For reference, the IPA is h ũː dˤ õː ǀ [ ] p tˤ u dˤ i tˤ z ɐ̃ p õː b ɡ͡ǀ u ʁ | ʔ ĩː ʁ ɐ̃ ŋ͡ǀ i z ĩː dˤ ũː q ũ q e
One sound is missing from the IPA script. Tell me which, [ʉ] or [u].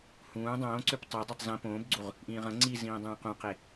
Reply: ʉ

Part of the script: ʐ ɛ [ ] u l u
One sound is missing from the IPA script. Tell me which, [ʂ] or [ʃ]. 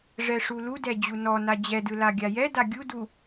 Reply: ʂ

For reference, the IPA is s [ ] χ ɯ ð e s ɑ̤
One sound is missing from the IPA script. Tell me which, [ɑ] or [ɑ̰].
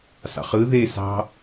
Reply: ɑ̰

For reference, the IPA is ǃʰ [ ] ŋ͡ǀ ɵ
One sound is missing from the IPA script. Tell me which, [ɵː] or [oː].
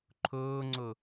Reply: ɵː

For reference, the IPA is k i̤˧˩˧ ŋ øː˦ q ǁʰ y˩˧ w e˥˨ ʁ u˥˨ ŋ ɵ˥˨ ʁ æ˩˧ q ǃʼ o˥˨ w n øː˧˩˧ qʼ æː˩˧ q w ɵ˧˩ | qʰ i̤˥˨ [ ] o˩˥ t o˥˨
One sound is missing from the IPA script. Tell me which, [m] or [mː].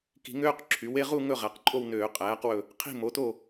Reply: m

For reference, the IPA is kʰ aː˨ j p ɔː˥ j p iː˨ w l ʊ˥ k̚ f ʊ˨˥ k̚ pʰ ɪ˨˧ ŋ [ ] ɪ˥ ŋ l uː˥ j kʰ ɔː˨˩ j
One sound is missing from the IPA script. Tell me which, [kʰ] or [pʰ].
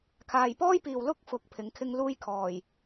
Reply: kʰ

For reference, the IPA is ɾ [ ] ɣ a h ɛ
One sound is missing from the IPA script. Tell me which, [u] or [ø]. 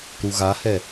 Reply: u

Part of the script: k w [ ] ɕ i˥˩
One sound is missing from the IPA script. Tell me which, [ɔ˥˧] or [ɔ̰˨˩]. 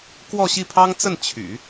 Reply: ɔ˥˧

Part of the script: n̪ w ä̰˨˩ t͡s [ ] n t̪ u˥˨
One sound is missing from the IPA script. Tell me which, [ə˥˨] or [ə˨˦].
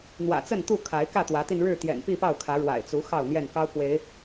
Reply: ə˥˨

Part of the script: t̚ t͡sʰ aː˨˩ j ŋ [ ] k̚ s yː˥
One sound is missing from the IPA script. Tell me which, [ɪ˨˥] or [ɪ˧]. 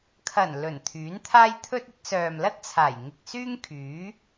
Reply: ɪ˧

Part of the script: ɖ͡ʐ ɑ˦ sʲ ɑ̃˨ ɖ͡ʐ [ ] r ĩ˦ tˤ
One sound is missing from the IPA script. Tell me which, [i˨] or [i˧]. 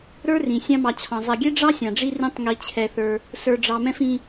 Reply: i˧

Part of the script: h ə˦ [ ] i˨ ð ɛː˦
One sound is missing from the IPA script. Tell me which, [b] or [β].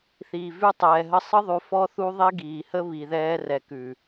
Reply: β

